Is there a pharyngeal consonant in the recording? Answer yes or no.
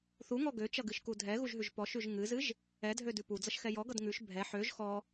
yes